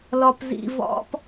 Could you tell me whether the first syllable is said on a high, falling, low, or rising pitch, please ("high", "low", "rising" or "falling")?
low